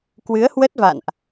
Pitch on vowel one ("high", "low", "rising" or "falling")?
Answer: rising